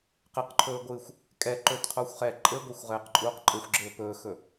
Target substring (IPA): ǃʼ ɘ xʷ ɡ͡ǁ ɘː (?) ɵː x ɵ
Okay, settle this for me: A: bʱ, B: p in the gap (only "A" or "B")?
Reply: B